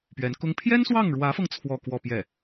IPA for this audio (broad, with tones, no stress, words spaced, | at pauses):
pɥɛ˧˥nkʊ˥ŋ pʰjɛ˥nswɑ˥˩ŋɻwä˧˥fɤ˧ŋ t͡sʰwɔ˥˧kwɔ˥˧pjɛ˥˩